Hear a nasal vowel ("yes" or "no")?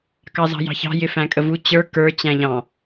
yes